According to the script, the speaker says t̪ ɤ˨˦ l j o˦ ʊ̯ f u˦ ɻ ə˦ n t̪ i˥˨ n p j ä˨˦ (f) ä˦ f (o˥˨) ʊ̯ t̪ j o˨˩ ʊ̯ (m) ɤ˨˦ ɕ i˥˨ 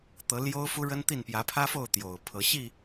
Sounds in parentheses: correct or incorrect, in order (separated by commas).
incorrect, correct, incorrect